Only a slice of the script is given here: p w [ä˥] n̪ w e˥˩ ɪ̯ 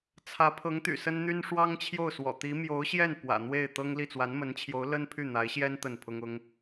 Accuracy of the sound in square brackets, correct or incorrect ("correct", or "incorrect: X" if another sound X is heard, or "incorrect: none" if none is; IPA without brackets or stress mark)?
incorrect: ä̰˨˩